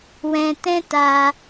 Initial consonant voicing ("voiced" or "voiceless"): voiced